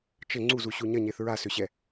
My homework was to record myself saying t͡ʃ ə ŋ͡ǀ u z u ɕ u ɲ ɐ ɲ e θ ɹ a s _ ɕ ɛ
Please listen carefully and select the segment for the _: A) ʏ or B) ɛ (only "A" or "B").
A